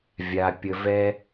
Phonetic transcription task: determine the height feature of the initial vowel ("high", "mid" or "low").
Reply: low